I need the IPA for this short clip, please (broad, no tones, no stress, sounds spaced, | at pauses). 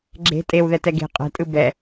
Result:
ɡ͡ǁ e̤ tʼ e w ð ɛ t ɛ ɡ e̤ qʼ ɛ̤ tʼ ɯ b ɛ